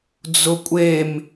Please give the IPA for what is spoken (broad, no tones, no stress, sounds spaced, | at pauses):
d͡z ʊ kʷʼ e m